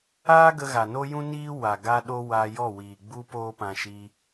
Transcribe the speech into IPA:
aː˦ ɡ ə˧ ɣ a˨ n o˦ j ũ˦ n iː˦ w a˨ ɡ a˦ ɗ o˦ w aː˧ j ɔ˦˨ w iː˨ ɡ͡b u˦ p oː˦ p ã˧ ʃ i˧

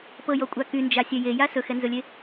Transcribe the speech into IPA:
p ɤ j ɔ kʷʼ a k y n d͡ʒ a sʲ ɛ j e j a s ɵ x ɛ n z ɵ lʲ e

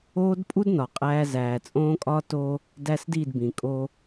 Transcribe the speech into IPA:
oː˦ d pʼ u˦ d n ɒ˨ qʼ æː˦ z æː˨ t͡sʼ õː˦ kʼ ɒː˦ t o˦ | d æ˦ s d i˦˨ d b ĩ˨ kʼ o˦

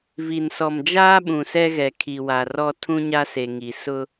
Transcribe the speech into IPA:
v i˨ n s ɔ˨ m d͡ʒ aː˦ ɓ ũ˨ s ɛ˦ ɣ ɛ˨ kʰ i˨ w a˨ r ɔ˦ tʰ ũ˦ ɲ a˦ s e˨ ŋ i˨ s ʊ˦

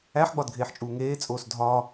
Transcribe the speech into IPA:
æ ħ ɡ͡b ɒ d ɡʱ eː ħ t͡ʃʼ uː ŋ eː t͡sʼ oː s dʱ ɒː

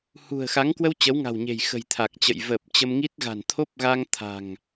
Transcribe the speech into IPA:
h ṳ˨˩ ə̯ x a˨˦ ŋ k w ə˧ w t͡ɕ ə˨˦ w ŋ a̤˨˩ w ɲ e̤˨˩ j x ə̤˨˩ j t̪ʰ a˨˩ k̚ t͡ɕ ə̰˧˨ j v əː˨˩ p̚ t͡ɕ ə˧ m ŋ i˦˥ t̚ ɣ a̤˨˩ n t̪ʰ o˦˥ p̚ ɣ a˧ ŋ t̪ʰ a̤˨˩ ŋ

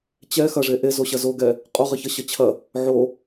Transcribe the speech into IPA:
t͡ɕ ɛ x ɐ ʐ e ʔ e z o ɕ ɐ z o ɡ ɛ | qʼ o ʁ ɘ ç ɐ ɕ ʌ t͡ɕʰ ɐ | ʕ o

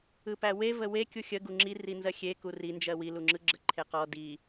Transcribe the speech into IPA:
ɯ p æ w e v ə w e kʲ u xʲ ə ɡ u ŋ͡ǁ i r i n z ɜ xʲ e k u r i n d͡ʒ ɜ w i l u ŋ͡ǁ ɯ ɡ͡ǁ ə ǃʰ e q ɔ d i

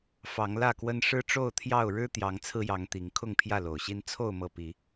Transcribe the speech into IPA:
f ɑ˨˦ ŋ l ä˥˨ k w ə˦ n ʂ ɻ̩˦ ʈ͡ʂ o˥˨ ʊ̯ t̪ʰ j ɑ˥˨ ʊ̯ ɻ ɻ̩˦ t̪ j ɑ˨˦ ŋ t͡sʰ ɹ̩˧ j ɑ˨˦ ŋ t̪ i˨˦ ŋ kʰ ʊ˥˨ ŋ pʰ j ä˥˨ l o˨˩ ʊ̯ ɕ i˦ n t͡sʰ o˥˨ ʊ̯ m ɤ˥˨ p i˨˦

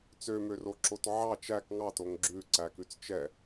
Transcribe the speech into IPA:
t͡s ø m ø r o ǁ o t ʕ ɑ t͡ʃ æ k ŋ ɑ t o ŋ ɡ͡ǁ ʉ ǀ æ k ʉ t͡s t͡ʃ ɛ

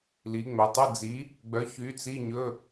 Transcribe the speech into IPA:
l i˩˧ ŋ͡m œ˩˧ tˤ ə˧˥˧ d͡z i˨˥ | ɡ͡b œ˨˥ ç y˨˥ t͡s i˧˥˧ ɲ ɵ˧˥˧

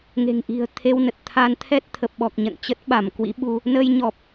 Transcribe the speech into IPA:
ŋ e̤˨˩ ŋ ʔ i̤˨˩ ə̯ t̪ʰ e˧ w n ə˨˩ t̚ t̪ʰ a˧ n t̪ʰ ɛ˦˥ t̚ t̪ʰ ə˨˩ p̚ ɓ ɔ˨˩ k̚ ɲ ə̰˧˨ n t͡ɕ ə˦˥ t̚ ɓ a˧˩ m k w ḭ˧˥ ɓ u˧ | n əː˧ j ɲ ɔ˨˩ p̚

